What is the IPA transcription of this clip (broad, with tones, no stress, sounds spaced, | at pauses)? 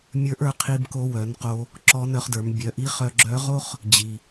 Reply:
mʲ ə˞˧˥ ʔ ə˞˧ qʰ i˧ b k o˧ w œ˩˧ n q o˧ | ǁ ɔ˧˥ n œ˧ χ d ə˞˩˧ m bʲ œ˩˧ ʔ i˧˥ χ œ˧ ɡ͡ǁ œ˧˥ ʁ o˥ χ | d͡ʑ i˩